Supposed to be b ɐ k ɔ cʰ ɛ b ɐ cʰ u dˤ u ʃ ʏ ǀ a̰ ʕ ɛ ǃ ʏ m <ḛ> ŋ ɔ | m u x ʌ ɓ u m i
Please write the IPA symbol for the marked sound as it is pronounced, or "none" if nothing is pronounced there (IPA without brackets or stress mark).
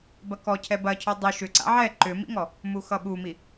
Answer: ḭ